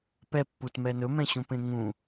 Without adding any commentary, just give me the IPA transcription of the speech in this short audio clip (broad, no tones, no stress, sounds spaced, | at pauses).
p ɛ pː u t m ɛ n ɵ m ɛ̃ ɕ ũ p ẽ ŋ ũ